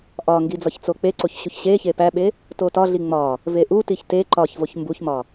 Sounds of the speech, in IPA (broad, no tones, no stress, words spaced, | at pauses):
ʔɒŋɡi d͡zɒçt͡sok͡peǀoç ɕuçɕeçe pæɓe | totɒɮi ŋ͡mɒ | veʔutiç te ǃɒçvoç mbuçmɒ